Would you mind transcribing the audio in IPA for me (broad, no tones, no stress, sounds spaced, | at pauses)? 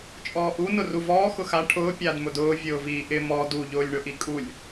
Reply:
t͡ʃʼ ɔː ʔ u n ʊ r u v ɔː x ʊ x a ʈʰ ʊː pʲ a d m ʊ d ʊː vʲ ʊː v iː ʔ ɪ m ɔ d u ʎ ʊː lʲ ɳ ʊ ʔ i kʼ u lʲ